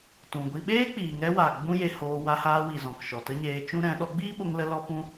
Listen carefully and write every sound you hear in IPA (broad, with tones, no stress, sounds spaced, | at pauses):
t ũ˨ ɡʷ i˧ ɓ eː˦ k͡p iː˨ ŋ ɛ˧ w a˨ ɡ͡b ũ˦ j e˧ h oː˧ w a˧ h aː˧ w i˨ z ɔ̃˨ k ʃ ɔ˨ t ə˦ ɲ eː˧ t͡ʃ ũ˦ ɾ ɛ̃˨˦ ɗ ɔ˨˦ ɡ͡b iː˦ ɓ o˧ ŋ l ə˦ l ɔ˦ p ũ˦